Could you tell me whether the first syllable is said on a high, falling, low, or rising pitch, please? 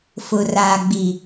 low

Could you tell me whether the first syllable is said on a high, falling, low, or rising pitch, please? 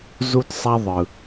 high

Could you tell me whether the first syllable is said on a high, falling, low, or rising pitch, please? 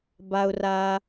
high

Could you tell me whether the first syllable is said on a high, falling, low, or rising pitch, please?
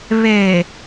low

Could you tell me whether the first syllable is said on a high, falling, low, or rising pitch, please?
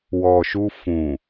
low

